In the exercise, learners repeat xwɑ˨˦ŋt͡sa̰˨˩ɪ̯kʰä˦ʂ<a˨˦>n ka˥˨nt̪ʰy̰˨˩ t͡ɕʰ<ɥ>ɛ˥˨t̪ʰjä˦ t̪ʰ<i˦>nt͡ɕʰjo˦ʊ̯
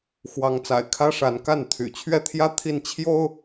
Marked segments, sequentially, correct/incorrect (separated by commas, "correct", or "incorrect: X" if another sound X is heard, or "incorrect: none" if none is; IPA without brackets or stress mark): correct, correct, incorrect: i˥˨